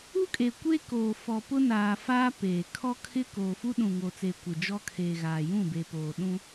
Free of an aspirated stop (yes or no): no